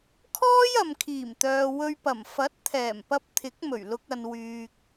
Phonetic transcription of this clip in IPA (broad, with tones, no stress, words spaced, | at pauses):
kʰɔː˥jɐ˨mkʰiː˨˩mt̪œː˨ wɵ˧ɥpɐ˨˩m fɐ˨˥t̚ t̪ʰɛː˨˩mpɐ˧p̚ t̪ʰɪ˨˥k̚mɵ˨˩ɥ lʊ˧k̚ɐ˨n wyː˨k̚